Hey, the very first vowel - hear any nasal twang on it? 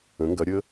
yes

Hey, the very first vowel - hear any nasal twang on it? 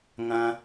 yes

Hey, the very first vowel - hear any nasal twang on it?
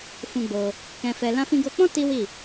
yes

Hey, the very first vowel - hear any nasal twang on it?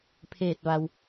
no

